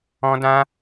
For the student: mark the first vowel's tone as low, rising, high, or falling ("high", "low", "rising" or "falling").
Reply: high